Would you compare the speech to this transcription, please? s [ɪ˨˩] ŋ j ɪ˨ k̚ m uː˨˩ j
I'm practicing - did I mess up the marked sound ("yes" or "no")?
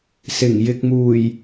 no